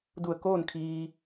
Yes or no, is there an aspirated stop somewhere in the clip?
yes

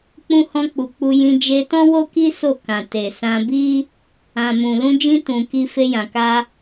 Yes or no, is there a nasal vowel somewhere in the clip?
yes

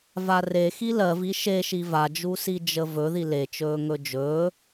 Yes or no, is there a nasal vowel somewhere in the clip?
no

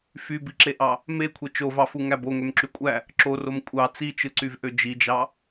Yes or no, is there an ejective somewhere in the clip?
yes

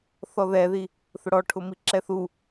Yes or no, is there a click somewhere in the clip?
yes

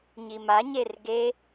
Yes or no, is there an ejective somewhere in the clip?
no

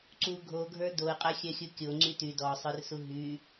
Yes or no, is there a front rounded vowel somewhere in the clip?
yes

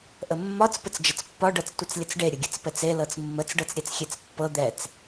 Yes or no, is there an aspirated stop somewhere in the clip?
no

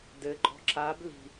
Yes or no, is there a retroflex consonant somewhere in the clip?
no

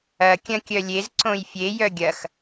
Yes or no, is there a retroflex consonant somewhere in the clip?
no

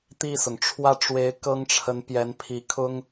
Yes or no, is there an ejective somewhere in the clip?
no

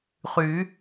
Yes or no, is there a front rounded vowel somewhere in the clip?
yes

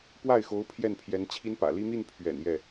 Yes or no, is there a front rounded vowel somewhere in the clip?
no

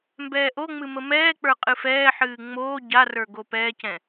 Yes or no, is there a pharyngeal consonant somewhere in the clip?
yes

